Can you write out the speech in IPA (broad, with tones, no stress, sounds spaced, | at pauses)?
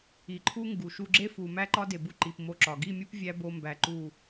i˨ ǃʰ u˦ ŋ ɡ u˨ ʃ u˧ ɡ͡ǁ e˦ f u˨ m æ˦ ǃ ɒ˦ d e˨ b u˧ ǃ i˨ p m o˧ ǁ ɒ˨ ɡ i˦˨ mʲ u˦ p vʲ æ˦ b o˧ m b æ˨ ǃ u˦˨